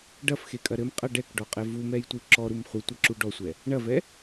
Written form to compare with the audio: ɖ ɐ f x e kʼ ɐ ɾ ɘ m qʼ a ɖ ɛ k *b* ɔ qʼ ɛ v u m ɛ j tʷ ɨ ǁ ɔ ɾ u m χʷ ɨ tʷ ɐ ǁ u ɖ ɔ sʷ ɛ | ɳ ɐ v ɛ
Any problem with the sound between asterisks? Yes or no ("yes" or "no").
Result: yes